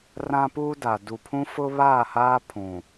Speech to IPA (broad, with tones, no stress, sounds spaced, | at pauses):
r ã˦ p uː˦ d a˨ d u˨ pʰ ũ˦ f ʊ˦ β aː˦˨ h aː˦ pʰ ũ˨